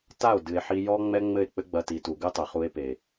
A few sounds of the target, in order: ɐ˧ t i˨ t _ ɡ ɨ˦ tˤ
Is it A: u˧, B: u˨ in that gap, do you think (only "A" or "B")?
B